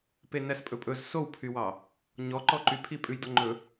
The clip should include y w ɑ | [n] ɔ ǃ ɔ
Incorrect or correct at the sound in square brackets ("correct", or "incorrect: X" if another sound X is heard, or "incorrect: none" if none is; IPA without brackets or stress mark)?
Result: incorrect: ɲ